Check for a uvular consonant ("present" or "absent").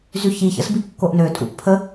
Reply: absent